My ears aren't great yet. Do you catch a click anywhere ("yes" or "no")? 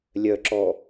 yes